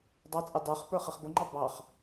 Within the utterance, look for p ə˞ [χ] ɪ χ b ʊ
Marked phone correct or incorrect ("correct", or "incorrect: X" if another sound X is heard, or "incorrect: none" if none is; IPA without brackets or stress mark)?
correct